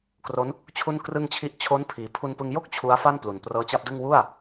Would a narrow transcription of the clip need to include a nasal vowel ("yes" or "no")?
no